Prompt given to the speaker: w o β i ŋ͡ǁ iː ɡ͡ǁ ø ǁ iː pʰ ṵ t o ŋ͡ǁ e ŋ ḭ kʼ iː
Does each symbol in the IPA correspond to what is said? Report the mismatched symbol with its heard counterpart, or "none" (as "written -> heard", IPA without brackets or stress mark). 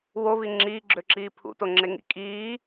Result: none